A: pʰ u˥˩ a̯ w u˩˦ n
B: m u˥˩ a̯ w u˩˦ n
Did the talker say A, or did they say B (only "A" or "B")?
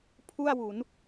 A